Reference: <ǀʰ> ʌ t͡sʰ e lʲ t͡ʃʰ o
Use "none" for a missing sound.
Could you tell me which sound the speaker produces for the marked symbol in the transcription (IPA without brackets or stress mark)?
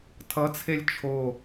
tʰ